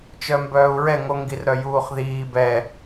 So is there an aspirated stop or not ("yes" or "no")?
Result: no